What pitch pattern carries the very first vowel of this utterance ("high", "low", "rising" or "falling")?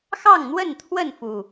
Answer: falling